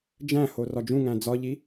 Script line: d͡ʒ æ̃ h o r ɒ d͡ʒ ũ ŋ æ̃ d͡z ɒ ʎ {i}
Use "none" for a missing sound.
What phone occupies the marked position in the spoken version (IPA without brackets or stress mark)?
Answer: i